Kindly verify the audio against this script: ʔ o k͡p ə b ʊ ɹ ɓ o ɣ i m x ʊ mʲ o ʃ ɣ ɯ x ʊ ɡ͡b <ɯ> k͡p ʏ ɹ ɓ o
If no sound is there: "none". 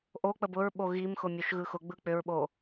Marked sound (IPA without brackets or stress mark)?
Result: ɯ